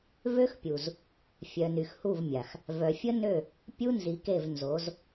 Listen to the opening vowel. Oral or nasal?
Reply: oral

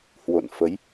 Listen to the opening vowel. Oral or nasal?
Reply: oral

